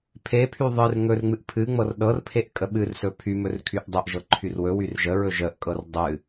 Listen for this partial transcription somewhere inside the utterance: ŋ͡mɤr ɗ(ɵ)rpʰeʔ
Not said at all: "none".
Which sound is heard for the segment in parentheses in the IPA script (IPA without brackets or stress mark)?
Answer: ɤ